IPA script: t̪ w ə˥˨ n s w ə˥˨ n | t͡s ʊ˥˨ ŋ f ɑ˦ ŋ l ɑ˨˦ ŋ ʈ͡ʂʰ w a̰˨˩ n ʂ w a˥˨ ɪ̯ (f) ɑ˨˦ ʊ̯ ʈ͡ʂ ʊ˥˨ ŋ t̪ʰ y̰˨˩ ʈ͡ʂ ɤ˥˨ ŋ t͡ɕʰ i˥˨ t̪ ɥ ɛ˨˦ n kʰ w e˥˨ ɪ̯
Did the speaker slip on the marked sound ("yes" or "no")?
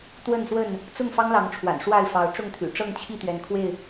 no